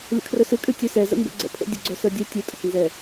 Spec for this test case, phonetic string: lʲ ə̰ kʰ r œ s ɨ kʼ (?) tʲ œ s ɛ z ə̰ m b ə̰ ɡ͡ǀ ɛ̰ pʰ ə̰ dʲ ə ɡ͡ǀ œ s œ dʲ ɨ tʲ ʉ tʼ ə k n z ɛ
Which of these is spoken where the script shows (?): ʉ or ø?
ʉ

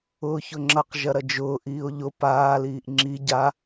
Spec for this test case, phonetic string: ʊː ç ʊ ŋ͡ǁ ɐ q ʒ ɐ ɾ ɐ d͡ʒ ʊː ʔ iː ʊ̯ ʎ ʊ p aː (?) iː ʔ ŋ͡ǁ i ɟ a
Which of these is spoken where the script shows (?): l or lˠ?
l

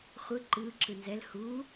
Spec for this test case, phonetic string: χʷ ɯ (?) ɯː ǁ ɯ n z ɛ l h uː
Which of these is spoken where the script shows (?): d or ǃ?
ǃ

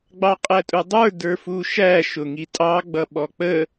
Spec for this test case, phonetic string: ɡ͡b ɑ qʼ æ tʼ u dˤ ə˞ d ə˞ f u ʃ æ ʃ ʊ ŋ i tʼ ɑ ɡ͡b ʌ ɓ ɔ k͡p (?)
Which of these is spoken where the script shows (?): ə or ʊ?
ə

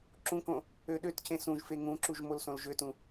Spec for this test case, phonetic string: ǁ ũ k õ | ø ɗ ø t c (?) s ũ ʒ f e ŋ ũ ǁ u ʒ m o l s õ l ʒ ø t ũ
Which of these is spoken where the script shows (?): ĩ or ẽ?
ẽ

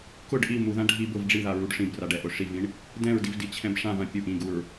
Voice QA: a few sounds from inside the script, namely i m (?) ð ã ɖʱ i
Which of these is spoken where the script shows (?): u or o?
u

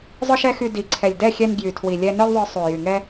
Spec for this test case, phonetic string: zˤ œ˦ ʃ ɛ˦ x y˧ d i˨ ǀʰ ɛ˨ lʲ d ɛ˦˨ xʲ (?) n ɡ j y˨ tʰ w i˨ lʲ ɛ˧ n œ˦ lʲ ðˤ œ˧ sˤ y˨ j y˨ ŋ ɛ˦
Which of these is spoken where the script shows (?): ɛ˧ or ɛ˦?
ɛ˧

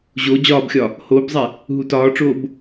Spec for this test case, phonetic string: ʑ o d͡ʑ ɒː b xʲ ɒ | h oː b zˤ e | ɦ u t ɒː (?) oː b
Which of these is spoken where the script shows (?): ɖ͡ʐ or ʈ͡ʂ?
ʈ͡ʂ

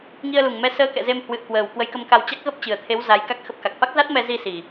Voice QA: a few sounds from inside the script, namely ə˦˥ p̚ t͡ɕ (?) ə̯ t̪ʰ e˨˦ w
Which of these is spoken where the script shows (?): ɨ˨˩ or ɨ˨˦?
ɨ˨˩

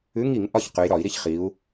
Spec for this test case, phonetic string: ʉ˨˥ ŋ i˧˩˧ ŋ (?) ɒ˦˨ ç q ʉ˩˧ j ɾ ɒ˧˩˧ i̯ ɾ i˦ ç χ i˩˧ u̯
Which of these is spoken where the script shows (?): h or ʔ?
ʔ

